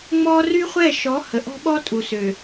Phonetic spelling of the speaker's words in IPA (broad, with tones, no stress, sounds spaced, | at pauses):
ŋ͡m ɔ˦ r y˦ χʷ ɛ˦˨ ʃ ɔ˨˦ h ə˨ ʔ ɔ̤˦ ɓ ɔ˦ tʼ u˨ s ø˨